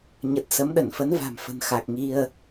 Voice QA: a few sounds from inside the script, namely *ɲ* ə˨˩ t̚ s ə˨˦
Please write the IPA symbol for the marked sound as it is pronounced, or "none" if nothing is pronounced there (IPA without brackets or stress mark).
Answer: ɲ